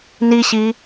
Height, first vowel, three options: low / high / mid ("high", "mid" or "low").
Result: high